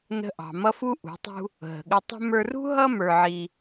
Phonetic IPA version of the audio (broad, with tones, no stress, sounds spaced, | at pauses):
n ə̤˧ ʔ ɑ̤˨ m ʌ˦ f u˦ ʔ ṳ˨˦ tˤ ṳ˦ | ɦ ə̤˨ ɠ ə˧ tˤ ə̤˦ m ə˞˧ r ṳ˦ ɦ ʌ˦ m ə˞˧ ʕ i˧